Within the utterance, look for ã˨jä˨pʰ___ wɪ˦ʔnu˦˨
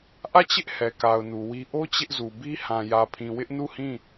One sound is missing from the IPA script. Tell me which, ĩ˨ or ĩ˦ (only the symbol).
ĩ˨